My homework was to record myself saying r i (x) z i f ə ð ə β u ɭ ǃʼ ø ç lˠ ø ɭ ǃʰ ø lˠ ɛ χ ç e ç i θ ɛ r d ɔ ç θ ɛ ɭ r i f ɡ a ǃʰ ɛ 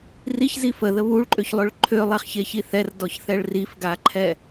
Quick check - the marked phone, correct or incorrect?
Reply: incorrect: ç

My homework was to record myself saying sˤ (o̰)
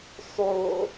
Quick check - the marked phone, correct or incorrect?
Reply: incorrect: o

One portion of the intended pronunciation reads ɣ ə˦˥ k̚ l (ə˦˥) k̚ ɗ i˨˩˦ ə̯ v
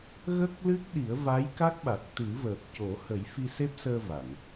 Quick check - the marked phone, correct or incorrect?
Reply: incorrect: ɨ˦˥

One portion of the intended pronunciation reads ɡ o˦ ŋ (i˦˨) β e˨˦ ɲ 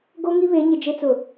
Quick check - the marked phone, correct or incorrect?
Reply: incorrect: i˦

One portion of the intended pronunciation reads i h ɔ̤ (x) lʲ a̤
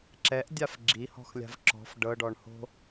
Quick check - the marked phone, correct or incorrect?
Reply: correct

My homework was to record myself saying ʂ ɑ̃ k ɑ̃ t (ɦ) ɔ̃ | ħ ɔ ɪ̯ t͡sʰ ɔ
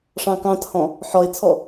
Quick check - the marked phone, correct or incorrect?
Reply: incorrect: h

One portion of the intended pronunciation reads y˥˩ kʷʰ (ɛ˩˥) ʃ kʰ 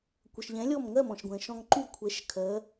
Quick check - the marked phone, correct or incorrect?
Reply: correct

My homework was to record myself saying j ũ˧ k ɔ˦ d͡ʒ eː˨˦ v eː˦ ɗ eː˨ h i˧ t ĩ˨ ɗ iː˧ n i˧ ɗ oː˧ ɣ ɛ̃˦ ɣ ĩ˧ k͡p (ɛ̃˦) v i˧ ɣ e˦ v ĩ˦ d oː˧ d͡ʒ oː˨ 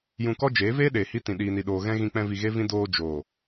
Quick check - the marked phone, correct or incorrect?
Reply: incorrect: ɛ̃˧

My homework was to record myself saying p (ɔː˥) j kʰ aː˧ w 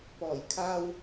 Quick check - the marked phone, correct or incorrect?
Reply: incorrect: ɔː˨˩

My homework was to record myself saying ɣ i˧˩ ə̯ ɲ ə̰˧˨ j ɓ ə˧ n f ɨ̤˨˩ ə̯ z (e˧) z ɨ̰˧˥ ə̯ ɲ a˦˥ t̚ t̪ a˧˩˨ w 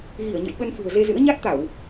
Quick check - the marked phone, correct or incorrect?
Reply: correct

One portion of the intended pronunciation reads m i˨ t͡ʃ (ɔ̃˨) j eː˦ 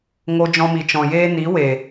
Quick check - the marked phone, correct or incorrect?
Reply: correct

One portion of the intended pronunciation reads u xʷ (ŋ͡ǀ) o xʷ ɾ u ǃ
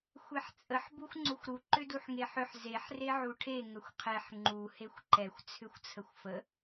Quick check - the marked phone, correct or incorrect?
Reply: correct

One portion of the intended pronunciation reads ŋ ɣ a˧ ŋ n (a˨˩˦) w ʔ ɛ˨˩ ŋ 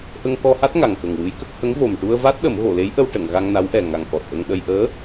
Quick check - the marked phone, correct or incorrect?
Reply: incorrect: a˧˥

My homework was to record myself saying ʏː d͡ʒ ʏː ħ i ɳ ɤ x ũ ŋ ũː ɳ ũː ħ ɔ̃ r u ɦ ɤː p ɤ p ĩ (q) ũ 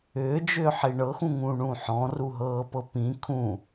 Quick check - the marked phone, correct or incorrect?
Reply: incorrect: kʰ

